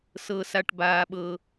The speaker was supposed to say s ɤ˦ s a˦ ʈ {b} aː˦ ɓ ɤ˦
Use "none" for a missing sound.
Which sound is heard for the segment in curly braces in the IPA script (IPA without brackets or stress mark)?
b